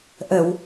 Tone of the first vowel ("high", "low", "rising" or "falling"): low